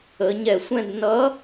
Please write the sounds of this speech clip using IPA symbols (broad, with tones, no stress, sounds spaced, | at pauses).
ə˩˧ ɲ ɛ˧˩˧ sʷ ɛ̃˥˧ d n ʌ˧˥